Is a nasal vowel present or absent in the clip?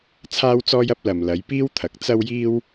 absent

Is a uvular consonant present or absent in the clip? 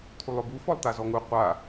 present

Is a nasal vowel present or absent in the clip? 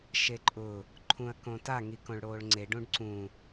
present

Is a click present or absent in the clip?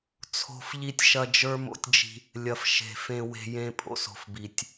absent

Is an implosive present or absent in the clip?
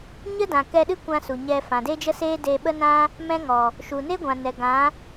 present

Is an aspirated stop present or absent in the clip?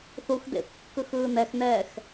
absent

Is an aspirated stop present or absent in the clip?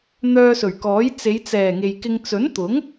absent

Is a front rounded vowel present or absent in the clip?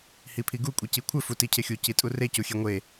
absent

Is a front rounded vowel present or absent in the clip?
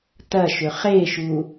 present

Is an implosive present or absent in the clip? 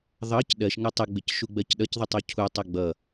present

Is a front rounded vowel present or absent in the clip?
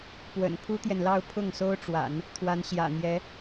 absent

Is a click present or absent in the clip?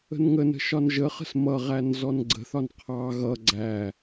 present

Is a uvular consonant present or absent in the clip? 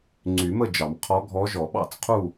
present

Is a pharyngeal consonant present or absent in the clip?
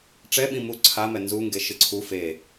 absent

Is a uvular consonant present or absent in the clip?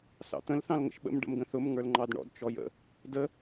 absent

